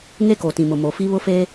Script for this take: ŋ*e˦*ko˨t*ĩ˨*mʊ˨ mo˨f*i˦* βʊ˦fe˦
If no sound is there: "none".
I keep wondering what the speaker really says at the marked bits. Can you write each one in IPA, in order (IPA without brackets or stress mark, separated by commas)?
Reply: e˦, ĩ˨, i˦